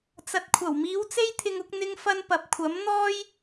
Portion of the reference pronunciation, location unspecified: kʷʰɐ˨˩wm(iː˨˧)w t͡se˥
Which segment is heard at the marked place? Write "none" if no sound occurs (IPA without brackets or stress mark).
iː˨˧